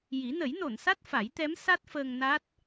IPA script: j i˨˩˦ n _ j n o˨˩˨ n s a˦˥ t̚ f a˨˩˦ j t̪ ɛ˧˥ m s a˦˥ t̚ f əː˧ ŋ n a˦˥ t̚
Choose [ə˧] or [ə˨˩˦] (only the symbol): ə˨˩˦